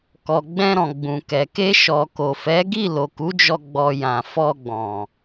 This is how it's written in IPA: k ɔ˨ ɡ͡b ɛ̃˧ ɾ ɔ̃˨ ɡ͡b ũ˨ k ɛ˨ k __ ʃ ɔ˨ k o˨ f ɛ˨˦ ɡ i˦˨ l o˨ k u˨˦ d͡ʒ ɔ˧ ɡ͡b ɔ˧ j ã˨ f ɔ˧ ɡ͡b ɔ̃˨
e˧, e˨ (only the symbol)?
e˧